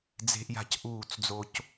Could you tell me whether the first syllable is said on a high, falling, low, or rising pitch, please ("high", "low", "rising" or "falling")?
high